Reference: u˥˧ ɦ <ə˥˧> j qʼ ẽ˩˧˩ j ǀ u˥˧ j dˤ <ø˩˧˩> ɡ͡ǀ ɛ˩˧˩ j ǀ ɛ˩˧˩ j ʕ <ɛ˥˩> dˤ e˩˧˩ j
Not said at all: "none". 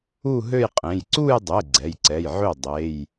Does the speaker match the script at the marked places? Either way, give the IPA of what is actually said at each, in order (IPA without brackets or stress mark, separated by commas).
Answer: ø˥˧, e˩˧˩, ø˥˩